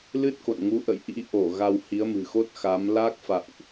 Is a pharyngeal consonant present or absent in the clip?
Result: absent